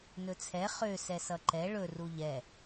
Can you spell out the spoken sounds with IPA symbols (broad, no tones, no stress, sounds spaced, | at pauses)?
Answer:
n ɵ t͡sʰ ɛ χ ø s ɛ s ʌ ǃ ɛ ɭ ɵ r u ʎ ɛ